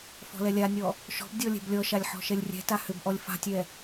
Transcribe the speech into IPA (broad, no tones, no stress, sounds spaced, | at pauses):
f ɔ̤ l ɛ lʲ a nʲ ɔ | ʃ ɔ̤ b dʲ ɔ lʲ ɛ̤ b lʲ ɔ ʃ a lʲ ħ ɔ̤ ʃ ɛ lʲ rʲ ɛ̤ t a h ʏ b ʔ ɔ lʲ f a̤ tʲ ɛ